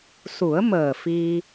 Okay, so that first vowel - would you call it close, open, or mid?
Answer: close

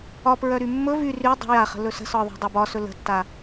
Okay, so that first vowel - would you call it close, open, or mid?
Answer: open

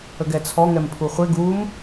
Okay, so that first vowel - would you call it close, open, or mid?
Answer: mid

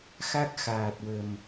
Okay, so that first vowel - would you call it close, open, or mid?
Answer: open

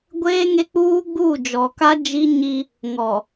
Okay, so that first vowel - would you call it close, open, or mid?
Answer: mid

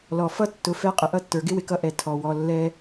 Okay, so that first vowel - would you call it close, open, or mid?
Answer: mid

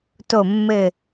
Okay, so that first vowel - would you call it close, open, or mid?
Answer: mid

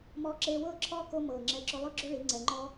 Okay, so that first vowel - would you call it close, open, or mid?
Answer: mid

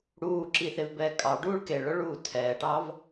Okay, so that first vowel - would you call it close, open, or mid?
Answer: close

